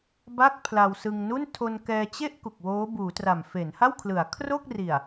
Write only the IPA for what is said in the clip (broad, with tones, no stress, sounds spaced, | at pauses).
b a˥˩ k̚ pʰ l a˧ w s ɯ˧ ŋ n u˥˩ n tʰ o˧ n k ɛː˧ t͡ɕ e˥˩ ʔ k u˨˩ k̚ w oː˦˥ b uː˩˦ t r a˨˩ m f e˩˦ n h a˥˩ w kʰ l ɯ˩˦ a̯ kʰ r o˥˩ k̚ r i˨˩ a̯